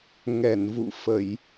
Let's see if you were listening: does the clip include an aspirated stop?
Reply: no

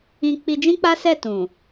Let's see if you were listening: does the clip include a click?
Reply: no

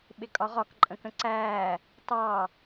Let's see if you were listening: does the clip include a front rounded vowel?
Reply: no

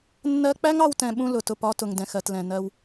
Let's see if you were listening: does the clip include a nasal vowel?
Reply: yes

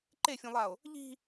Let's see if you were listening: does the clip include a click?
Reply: yes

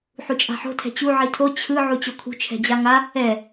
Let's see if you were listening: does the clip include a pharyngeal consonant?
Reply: yes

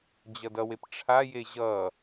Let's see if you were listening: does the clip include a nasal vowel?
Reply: no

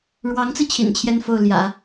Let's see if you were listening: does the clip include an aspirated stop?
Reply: yes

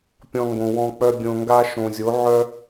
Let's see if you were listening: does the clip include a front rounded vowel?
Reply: yes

